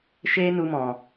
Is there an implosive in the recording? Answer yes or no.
no